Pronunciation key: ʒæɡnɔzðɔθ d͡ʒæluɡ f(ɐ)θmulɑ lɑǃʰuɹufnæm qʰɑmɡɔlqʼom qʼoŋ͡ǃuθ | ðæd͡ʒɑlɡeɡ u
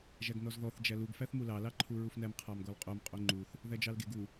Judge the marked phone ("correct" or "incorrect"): incorrect